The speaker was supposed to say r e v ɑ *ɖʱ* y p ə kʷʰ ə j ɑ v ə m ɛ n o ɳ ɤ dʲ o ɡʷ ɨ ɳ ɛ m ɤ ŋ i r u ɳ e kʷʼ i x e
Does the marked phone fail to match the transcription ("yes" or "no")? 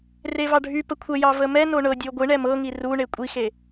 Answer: no